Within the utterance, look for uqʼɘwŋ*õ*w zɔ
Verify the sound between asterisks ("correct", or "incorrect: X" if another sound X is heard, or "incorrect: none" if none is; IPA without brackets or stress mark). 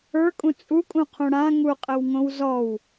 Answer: correct